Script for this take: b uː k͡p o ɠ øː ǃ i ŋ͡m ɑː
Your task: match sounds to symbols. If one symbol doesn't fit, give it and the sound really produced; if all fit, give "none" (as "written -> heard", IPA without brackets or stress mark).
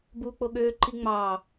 none